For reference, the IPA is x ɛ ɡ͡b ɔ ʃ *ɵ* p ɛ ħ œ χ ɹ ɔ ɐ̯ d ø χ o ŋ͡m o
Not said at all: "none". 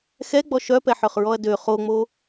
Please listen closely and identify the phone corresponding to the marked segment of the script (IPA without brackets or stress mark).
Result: œ